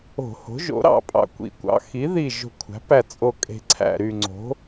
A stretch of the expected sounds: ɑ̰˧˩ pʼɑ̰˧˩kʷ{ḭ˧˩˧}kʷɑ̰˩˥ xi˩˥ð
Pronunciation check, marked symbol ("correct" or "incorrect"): correct